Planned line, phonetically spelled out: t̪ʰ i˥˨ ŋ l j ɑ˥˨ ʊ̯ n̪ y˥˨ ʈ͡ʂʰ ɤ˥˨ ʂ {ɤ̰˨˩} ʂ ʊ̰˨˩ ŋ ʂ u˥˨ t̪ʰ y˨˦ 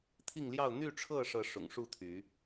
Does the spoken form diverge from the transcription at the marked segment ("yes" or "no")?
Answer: yes